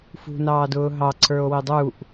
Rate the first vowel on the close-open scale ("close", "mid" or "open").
close